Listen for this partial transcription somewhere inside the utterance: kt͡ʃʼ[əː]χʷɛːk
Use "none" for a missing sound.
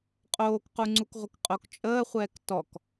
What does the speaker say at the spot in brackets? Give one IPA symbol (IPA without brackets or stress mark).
əː